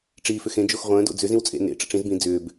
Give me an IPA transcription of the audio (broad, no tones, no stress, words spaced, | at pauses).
ʈ͡ʂiːfʏxẽ d͡ʒoxʁʷə̃ː do̰d͡zʏ zĩwt͡sʼḛ nḛ ʈ͡ʂə̰ʈ͡ʂĩz bĩ d͡zʏːb